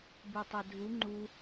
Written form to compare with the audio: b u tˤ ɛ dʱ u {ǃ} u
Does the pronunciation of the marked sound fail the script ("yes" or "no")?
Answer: yes